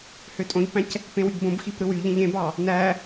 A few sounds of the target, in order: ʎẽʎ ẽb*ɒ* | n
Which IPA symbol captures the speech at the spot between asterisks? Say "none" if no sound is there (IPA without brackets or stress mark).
ɑ